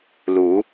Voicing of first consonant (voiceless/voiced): voiced